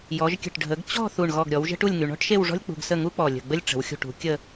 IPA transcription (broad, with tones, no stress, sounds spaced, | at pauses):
j ɔ˩˧ ʒ kʲ ə̤˧˩ ʈ ɖʱ ə˩˧ ɡ t͡ɕ ɔ̤˥˧ θ u˧˩ ɳ ɣ ɔ˧˩ ɡ ɾʲ ɔ˩˧ w ʒ ə̤˥ ʈ u˥˧ lʲ ŋ y˩˧ ɳ ɔ̤˥ ʈ ʃ e˥˧ w ʐ ɔ̤˥ lʲ k͡p ṳ˧ ɡ s ə˥˧ ŋ u˥ k͡p ɔ˧˩ lʲ ə̤˧˩ ɡ͡b ə˥ lʲ ʈ͡ʂ ə̤˩˧ w xʲ ṳ˧˩ ʈ ṳ˩˧ kʲ ə˥˧